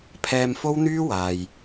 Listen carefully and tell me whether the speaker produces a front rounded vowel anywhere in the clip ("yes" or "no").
yes